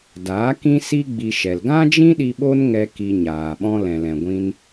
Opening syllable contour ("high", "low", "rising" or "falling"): rising